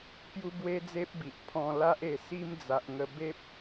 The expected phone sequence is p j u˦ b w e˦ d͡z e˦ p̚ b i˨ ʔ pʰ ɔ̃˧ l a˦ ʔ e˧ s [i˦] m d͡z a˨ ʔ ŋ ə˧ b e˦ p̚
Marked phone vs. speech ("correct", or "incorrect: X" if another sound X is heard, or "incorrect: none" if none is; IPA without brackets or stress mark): correct